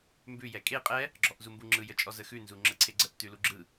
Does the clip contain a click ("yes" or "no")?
yes